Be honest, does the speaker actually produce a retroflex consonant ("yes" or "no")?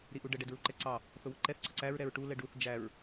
yes